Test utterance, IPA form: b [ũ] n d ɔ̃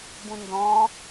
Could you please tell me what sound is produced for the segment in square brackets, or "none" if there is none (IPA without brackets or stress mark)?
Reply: ũ